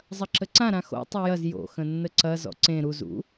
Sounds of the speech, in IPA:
zˤɐǁəǀã ɾãxo̰ tˤojɐz jo̰ xə̃nːəǀɐ zɔ̰ǀẽ ɾuz ṵ

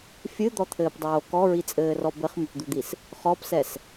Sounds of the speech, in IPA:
fʲɨd̪ɔt̪ʰɘːpdˤoː kɔɹit͡sʼɘːrɔ bɘχmɘpd̪ud̪is | χɔpsɛs

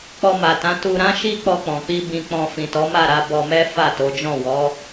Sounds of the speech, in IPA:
k͡pɔ˧ma˨tã˨˦ tu˧ɾã˦ʃi˦ k͡pɔ˧k͡pɔ̃˨k͡pi˧ bĩ˧k͡pɔ̃˧ fĩ˨tɔ˨˦ma˦˨ɾa˧ bɔ˧mɛ˦ fa˦˨to˨˦d͡ʒɔ̃˦˨ wɔ˨˦

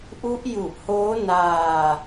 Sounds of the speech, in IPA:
ʔu˦˥ʔju˨˩ʔhoː˦˥ naː˧

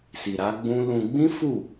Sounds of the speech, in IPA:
si˨ɾa˨˦ ɡ͡bũ˦ lũ˧ ɡ͡bĩ˦fu˦˨

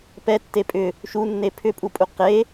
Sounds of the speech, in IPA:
pɛtːe pʼʏ | ʃunːe pʰʏpʼupʼu qe

